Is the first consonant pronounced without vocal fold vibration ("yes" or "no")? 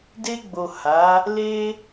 no